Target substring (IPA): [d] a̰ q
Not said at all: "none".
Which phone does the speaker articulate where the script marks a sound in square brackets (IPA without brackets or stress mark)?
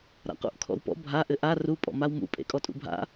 ɾ